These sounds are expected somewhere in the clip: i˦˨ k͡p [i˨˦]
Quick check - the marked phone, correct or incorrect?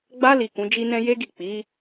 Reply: correct